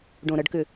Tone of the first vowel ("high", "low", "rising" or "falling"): low